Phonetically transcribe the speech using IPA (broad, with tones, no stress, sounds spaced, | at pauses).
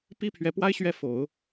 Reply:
p i˥ pʰ ɥ ɛ˧˥ p w a˥ ɪ̯ ɕ ɥ ɛ˥˩ f o˨˩˦ ʊ̯